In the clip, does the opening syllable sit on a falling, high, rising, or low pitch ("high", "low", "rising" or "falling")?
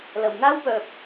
low